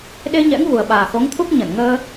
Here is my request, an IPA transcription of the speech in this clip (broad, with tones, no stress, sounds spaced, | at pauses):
ɗ e˧ ɲ ɛ̰˧˥ ŋ v u˨˩ ə̯ ɓ aː˨˩ x o˨˦ ŋ t̪ʰ u˦˥ k̚ ɲ ə˧˩ n ŋ əː˧